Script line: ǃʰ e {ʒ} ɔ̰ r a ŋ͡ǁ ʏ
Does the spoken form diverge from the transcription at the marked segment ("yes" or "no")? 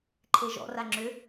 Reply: no